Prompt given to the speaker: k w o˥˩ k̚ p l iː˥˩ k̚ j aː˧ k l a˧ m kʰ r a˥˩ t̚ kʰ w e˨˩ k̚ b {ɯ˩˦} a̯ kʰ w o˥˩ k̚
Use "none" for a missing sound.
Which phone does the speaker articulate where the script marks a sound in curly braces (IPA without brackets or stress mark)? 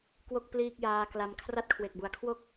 u˩˦